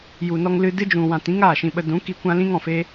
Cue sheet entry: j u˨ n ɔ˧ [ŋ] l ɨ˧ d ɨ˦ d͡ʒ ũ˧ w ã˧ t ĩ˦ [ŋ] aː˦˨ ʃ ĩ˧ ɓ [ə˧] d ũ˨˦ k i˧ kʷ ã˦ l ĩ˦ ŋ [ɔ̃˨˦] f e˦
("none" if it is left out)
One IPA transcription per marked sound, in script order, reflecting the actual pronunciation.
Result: ŋ, ŋ, ə˧, ɔ̃˨

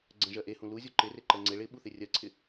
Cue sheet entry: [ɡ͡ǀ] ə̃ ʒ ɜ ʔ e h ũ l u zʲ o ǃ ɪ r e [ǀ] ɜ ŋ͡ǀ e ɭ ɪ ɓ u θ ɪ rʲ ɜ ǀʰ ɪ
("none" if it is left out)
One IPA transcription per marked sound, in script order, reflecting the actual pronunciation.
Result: ɡ͡ǀ, ǃ

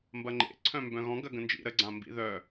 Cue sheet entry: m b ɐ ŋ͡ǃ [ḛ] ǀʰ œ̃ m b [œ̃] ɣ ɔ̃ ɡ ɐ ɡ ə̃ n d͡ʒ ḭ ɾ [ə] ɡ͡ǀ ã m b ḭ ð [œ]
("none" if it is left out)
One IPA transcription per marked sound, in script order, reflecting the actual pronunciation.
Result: ḛ, œ̃, ə, œ

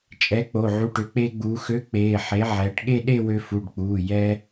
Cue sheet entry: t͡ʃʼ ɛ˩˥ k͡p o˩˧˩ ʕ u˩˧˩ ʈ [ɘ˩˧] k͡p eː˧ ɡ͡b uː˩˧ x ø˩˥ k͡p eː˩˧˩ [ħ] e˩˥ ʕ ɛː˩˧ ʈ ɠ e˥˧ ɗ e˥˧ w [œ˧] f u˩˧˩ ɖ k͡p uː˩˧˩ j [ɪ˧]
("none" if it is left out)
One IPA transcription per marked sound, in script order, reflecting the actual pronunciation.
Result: ø˩˧, ħ, ø˧, ɛ˧

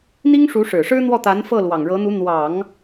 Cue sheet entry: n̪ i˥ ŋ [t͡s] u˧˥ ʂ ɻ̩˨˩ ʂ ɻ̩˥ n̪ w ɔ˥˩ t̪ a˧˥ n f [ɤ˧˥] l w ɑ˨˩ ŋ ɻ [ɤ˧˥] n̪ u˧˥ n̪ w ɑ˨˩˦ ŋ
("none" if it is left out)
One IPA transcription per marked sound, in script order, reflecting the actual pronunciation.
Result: ʂ, ɤ˥˩, ɤ˧˥

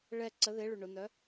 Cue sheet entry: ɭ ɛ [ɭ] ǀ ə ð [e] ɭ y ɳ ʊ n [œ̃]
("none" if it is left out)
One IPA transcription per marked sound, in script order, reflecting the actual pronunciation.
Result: none, e, œ

